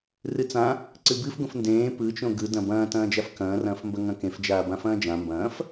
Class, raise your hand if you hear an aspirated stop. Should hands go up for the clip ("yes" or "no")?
no